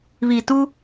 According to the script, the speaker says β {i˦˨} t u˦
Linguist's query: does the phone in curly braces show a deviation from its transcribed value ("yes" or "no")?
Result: yes